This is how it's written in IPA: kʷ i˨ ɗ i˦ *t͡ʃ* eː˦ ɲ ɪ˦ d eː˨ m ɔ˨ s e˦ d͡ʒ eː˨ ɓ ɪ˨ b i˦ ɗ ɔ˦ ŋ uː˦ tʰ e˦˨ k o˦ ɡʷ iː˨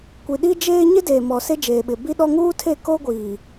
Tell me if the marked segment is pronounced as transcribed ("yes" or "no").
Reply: no